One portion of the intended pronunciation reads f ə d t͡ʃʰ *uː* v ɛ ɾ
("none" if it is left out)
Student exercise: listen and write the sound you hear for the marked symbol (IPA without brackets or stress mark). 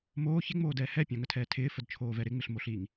oː